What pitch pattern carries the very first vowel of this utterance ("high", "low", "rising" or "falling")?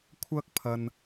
high